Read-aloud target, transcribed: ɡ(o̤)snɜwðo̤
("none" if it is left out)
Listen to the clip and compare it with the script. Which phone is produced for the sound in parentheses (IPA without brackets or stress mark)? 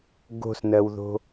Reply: o̤